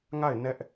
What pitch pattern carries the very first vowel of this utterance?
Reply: falling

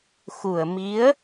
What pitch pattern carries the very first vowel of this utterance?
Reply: low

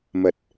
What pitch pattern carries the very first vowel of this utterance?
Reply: low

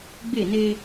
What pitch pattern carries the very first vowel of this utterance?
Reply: falling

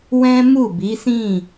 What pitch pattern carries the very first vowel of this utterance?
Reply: high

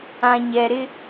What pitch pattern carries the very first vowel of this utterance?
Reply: low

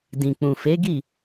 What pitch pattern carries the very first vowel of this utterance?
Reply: low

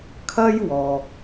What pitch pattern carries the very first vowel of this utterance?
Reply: high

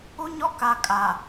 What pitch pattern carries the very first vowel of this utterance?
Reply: high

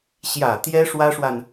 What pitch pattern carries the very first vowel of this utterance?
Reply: low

